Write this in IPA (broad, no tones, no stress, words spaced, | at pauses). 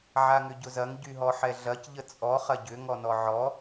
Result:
ʕaŋʏɟʊzɐŋ ɟyɦɔħɛɮɐc ʎət͡sʼɔ χɐɟʏ ŋɔnɔʕɔ